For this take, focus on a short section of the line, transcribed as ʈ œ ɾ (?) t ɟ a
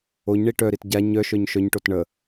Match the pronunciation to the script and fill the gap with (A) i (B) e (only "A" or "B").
A